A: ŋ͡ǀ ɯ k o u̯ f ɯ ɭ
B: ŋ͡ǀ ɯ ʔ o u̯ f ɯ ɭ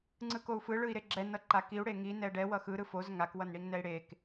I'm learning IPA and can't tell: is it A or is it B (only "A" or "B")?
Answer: A